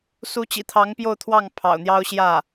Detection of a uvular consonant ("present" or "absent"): absent